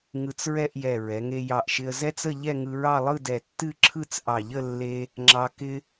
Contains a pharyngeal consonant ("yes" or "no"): no